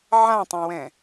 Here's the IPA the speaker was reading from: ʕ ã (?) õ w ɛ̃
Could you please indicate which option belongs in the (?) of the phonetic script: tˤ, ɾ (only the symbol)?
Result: tˤ